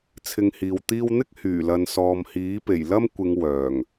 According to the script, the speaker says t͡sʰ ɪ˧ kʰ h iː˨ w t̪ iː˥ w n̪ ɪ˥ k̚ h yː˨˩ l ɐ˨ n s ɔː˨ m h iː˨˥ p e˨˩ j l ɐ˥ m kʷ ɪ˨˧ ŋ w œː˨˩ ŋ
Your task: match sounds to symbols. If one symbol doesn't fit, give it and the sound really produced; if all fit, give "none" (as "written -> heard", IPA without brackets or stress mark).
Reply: kʰ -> ŋ